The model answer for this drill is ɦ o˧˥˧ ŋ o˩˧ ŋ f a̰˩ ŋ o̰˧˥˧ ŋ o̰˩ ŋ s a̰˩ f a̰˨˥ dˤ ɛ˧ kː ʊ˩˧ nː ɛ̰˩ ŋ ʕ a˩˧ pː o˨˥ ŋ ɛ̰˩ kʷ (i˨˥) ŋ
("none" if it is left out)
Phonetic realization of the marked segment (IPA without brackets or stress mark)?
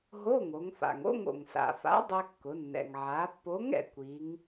i˨˥